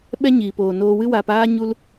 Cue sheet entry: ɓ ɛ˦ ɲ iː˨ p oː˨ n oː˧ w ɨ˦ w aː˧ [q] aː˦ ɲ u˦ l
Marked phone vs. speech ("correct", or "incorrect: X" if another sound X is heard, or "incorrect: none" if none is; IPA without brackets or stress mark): incorrect: p